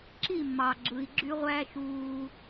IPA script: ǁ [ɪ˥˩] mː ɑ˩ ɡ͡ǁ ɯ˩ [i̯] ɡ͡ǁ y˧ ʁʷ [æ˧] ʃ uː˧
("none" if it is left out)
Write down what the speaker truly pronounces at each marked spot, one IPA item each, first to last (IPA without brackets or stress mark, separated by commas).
i˥˩, i̯, æ˧